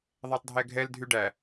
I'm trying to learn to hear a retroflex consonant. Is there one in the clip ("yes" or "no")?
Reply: yes